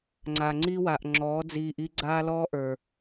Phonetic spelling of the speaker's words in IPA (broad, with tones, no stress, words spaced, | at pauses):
ŋ͡ǀa˨ŋ͡ǀi˦wa˨ʔ ŋ͡ǁɔː˨˦d͡ziː˧ʔ i˦ ɡ͡ǀaː˦lɔː˦ʔə˞˨